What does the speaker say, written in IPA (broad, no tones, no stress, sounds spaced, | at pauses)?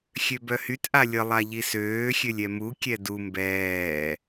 xʲ ø b œ h y t ʔ a lʲ ə lˠ a ʎ i s øː xʲ ø lʲ ɛ m u kʲ ɛ d u m b ɛː